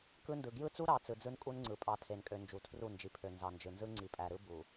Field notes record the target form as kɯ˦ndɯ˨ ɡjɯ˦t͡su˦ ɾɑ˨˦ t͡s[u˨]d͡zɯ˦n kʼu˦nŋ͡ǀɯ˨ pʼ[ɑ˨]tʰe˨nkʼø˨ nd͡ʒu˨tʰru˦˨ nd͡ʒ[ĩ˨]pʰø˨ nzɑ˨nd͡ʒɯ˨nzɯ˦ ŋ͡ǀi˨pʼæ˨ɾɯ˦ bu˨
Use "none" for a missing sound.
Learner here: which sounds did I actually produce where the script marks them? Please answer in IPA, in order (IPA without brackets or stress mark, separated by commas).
ɯ˨, ɑ˨, i˨